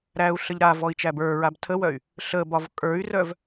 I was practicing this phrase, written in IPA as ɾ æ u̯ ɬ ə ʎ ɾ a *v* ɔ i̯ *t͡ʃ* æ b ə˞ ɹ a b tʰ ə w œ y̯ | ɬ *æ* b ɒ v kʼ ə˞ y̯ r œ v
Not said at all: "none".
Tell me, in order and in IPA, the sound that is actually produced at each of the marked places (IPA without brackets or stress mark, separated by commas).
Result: v, t͡ʃ, ə